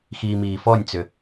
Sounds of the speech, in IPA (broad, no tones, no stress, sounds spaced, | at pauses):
x iː m iː f ɔ nʲ t͡s ʏ